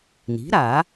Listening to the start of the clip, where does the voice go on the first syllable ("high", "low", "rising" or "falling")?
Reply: rising